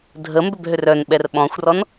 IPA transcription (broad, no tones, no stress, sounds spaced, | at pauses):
dʱ ə m b ʏ b ɦ ʏ r œ n ɓ ɛ r ɓ ɔ̃ xʷ r ɔ n